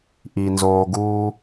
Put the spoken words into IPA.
ʔi˩ nzoː˩ɡuː˨

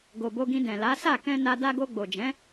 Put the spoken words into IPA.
ɡo˨bo˧ɡĩ˧ dɛ̃˨la˨˦sa˦˨ kɛ̃˧na˧ da˧ɡo˧ɡ͡bo˨d͡ʒɛ̃˨˦

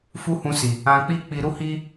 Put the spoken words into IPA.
fu˦hũ˧si˨ | ã˧ k͡pi˦k͡pi˧ ɾu˦hi˦

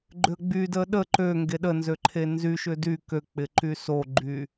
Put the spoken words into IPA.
ɡ͡ǃʏə̯ɡ͡bydə ɗə ǃø ŋɡeɗənzø ǃʰenzyʃʏ dy køk͡pɪ ǃysoɡ͡ǃy

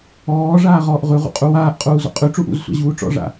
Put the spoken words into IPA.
ɔː ʐaːʁɔːʔʁʉʁṵ qʼuwaːʔqʼuː zɔ̰qʼʉʈ͡ʂuʔ ṵzsʷa̰ ʑuːʈ͡ʂɔ̰ʐa̰

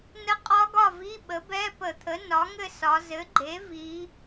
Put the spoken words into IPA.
nə˦˥qʼɒ˦˥ɡɒ˥˨vi˧˥˧ ɓə˩˥bɛ˧˥˧pə˧˩˧t̪ʰə˩˥ nɒ˩˥ŋɘ˥˨sɒ˩˧ zɘ˩˥ɡ͡ǃe˩˥ vi˩˧

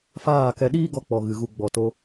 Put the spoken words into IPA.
faː˦˨kɛ˧ ɗiː˦ɡɔ˧k͡pɔ˨ ɣɨ˨ɣu˧ ɡ͡bɔ˨to˧

